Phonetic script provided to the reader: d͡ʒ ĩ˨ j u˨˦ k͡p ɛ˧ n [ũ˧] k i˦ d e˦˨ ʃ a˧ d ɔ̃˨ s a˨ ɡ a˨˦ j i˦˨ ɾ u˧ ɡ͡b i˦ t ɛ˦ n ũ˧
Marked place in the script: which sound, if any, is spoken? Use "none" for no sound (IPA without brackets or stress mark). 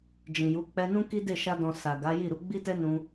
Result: ũ˦